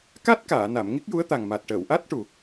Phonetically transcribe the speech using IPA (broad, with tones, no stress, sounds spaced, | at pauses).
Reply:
k a˦˥ t̚ k aː˨˩˨ n a˨˩˨ m ŋ i˦˥ k̚ j u˧˥ ə̯ t̪ a˨˩ ŋ m a˨˩ t̚ ʈ əː˨˩˨ w ʔ a˦˥ t̚ ʈ u˨˩